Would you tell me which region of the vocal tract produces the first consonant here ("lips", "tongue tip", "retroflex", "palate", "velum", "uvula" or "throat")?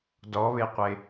tongue tip